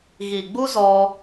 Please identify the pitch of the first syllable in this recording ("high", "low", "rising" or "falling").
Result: low